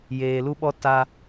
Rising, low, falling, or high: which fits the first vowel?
low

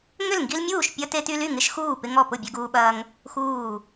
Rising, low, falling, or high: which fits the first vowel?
falling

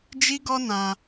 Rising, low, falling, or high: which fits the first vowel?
high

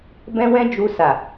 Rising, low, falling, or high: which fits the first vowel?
high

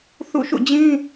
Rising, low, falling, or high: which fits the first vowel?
falling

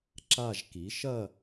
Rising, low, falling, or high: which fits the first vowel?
falling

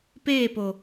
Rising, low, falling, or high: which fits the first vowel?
falling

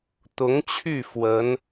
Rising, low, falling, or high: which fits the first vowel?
rising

